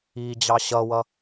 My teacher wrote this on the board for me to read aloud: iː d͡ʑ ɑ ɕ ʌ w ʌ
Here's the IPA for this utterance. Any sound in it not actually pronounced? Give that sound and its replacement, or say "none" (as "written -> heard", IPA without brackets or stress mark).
none